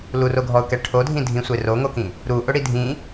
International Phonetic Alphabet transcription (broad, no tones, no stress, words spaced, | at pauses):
luroɡʱɔʊ̯kɛ ʈʰodʱĩdʱĩsʷe roŋokĩ | ɾuʔʊɽi dʱĩ